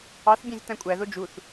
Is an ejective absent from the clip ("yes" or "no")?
no